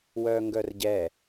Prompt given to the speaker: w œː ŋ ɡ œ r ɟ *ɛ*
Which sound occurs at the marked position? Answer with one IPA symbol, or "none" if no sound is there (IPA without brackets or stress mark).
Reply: ɛ